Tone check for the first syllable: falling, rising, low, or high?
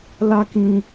high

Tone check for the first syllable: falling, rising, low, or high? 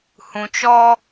low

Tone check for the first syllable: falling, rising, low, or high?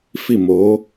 falling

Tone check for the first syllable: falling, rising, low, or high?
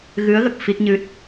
rising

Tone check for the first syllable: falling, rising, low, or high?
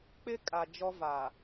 high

